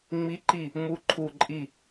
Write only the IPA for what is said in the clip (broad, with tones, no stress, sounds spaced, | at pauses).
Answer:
ŋ͡m i˧˥ ǃ i˦˨ | m u˧˥ ǃʰ u˦˨ ǃʼ i˦˨